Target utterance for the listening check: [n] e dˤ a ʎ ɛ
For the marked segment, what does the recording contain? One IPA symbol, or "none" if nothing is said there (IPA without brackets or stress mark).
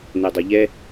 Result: n